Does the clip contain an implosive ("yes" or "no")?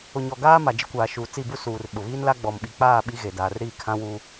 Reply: yes